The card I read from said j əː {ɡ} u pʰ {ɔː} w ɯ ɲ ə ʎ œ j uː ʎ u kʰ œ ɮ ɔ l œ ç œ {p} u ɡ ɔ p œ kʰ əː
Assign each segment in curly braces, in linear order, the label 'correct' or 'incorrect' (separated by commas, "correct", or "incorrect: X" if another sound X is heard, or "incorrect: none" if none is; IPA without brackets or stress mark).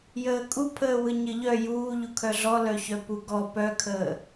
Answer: incorrect: kʼ, incorrect: əː, correct